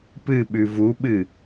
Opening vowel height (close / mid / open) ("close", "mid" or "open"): close